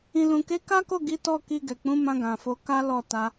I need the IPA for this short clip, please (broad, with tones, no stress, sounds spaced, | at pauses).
ĩ˨ l ũ˨ k e˨˦ k a˦ k o˦˨ ɡ i˨˦ t ɔ˦˨ k i˧ ɡ ɛ˨ k͡p ũ˨˦ m ã˧ ɡ ã˨ f o˨˦ k a˦ l ɔ˦˨ t a˧